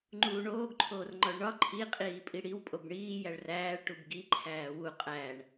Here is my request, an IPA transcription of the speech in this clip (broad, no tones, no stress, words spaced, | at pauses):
ŋ͡ǃuːɳoːɡǃʰoːr ŋ͡ǃɒɭɳɒ ǃʰiqʼiː pʼiɽiw pʼobɳiːjæɭ ræːɭʈub ɡi ǃʰæːwu qʼæɳ